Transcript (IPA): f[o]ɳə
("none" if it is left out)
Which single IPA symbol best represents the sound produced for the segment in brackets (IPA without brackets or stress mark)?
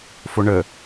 o